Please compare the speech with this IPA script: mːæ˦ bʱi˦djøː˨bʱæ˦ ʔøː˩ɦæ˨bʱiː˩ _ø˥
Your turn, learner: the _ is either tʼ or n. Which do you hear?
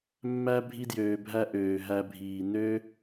n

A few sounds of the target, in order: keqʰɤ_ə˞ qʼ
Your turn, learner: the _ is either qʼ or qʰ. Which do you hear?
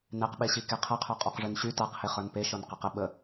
qʰ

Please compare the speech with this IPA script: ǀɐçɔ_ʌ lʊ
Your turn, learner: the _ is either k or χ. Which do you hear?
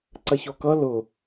k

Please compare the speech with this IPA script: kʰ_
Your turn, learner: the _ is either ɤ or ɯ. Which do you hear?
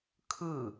ɯ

